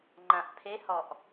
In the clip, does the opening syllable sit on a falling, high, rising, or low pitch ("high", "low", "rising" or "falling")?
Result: low